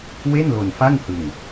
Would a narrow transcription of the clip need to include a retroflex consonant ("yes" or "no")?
no